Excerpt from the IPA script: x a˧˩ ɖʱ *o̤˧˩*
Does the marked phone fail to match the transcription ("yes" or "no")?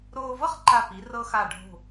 no